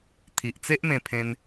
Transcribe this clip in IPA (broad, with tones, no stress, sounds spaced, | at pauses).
t̪ʰ i˨ ʔ t͡s e˦ ʔ m ẽ˧ pʰ ẽ˧ n